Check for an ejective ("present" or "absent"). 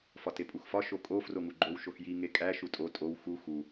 present